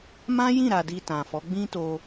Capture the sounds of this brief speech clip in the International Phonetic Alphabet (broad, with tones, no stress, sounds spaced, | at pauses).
m ã˦ j ĩ˦˨ ɾ a˧ d i˧ t ã˨ f ɔ˨˦ ɡ͡b ĩ˦ t o˧